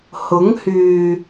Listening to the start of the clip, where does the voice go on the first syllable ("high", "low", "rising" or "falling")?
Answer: rising